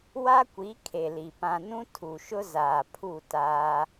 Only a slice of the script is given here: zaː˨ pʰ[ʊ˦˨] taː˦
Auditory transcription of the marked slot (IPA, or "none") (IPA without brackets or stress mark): u˦˨